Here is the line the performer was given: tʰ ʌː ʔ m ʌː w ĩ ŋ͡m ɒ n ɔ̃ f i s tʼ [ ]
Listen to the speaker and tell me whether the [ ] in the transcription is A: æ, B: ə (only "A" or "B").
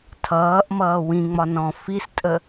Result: B